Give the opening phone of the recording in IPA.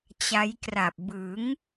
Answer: t͡ɕ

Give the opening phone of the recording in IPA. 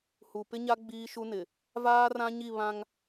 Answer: h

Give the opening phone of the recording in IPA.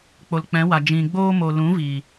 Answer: k͡p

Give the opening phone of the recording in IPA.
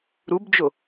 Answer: ɾ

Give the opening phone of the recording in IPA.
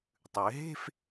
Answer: tˤ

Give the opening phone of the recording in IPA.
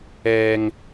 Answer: ɛː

